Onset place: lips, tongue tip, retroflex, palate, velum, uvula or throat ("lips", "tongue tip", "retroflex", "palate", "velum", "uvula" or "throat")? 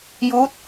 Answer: palate